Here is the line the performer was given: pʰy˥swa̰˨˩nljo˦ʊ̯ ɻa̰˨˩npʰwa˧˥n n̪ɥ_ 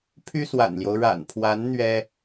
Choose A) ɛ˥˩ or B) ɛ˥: B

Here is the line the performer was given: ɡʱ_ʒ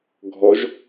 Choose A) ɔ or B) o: A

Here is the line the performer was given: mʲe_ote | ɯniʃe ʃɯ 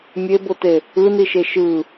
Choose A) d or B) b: B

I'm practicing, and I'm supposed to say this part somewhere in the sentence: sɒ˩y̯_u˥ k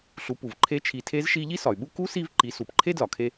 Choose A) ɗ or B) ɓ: B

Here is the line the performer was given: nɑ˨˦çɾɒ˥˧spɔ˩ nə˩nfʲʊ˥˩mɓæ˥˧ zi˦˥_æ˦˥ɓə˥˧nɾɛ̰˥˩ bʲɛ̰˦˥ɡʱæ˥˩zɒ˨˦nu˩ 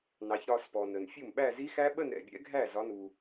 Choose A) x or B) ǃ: A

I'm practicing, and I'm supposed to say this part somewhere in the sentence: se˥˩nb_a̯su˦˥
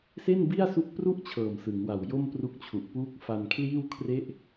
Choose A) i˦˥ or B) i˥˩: B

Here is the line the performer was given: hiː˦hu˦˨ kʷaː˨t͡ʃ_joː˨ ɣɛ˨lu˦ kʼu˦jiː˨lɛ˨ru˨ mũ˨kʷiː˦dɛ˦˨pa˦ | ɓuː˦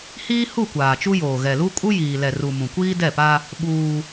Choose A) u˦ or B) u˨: A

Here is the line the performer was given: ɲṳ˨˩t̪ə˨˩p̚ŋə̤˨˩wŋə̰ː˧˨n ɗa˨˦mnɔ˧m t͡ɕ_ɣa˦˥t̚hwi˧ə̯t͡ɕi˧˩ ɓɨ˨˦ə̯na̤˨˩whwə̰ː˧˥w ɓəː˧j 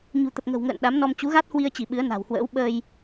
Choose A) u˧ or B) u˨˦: B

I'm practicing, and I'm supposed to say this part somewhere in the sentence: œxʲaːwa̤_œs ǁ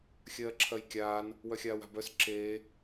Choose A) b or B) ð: A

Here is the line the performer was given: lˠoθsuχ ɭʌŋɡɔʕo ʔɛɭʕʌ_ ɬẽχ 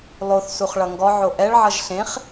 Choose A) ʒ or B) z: A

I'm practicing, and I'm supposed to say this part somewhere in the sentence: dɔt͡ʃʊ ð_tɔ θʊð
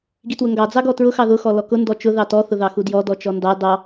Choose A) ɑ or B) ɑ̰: A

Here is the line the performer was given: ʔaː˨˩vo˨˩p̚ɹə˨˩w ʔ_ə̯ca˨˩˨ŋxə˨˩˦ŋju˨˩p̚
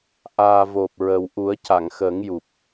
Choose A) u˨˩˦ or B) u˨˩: A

